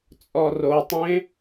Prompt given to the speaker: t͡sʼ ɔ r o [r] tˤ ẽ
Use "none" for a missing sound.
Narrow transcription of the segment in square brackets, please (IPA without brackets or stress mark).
none